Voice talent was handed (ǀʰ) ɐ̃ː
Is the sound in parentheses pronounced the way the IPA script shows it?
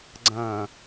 no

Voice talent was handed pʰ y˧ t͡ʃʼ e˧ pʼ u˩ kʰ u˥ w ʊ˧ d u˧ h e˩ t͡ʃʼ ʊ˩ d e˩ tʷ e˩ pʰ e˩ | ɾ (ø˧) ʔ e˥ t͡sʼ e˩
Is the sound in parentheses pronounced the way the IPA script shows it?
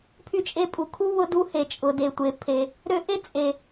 yes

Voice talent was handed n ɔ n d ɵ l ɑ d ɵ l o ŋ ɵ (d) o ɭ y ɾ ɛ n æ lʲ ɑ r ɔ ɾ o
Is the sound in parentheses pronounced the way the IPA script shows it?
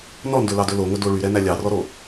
yes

